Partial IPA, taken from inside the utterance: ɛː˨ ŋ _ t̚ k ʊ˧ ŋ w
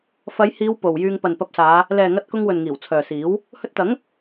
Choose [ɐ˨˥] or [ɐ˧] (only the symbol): ɐ˧